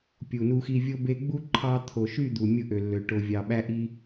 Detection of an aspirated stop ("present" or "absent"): present